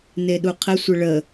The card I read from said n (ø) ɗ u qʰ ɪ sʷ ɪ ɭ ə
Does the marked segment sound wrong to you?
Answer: yes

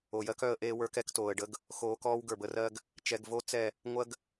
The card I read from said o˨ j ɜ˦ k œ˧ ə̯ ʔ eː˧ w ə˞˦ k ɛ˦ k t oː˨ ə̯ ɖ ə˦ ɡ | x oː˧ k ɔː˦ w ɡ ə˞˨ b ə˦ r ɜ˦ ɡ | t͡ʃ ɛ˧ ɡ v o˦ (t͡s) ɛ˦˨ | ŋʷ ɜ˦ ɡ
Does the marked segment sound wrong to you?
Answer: no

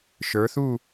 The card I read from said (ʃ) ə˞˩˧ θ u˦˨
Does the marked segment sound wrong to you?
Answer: no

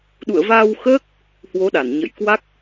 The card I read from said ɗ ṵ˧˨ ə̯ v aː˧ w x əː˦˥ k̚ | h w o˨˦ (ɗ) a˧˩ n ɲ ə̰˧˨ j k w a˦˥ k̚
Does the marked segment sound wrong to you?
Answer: no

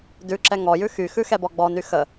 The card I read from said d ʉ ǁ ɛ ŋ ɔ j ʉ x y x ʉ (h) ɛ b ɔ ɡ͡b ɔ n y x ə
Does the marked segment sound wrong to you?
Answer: yes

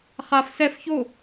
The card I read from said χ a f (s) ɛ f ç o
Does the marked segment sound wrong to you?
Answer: no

